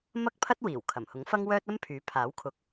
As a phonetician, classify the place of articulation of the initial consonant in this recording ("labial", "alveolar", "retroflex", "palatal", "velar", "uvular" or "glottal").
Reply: labial